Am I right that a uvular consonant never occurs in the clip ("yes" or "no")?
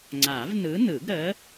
yes